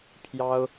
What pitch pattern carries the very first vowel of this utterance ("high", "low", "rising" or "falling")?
high